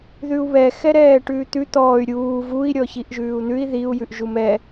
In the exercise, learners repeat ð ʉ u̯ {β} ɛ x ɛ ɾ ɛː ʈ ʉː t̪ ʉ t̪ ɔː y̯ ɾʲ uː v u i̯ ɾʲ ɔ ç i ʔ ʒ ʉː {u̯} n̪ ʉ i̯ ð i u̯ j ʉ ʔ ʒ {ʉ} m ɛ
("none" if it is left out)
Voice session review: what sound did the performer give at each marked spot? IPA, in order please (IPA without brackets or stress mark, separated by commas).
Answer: β, u̯, u